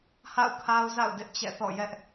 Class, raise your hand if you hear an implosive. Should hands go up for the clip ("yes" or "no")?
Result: no